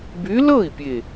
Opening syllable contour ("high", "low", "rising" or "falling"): rising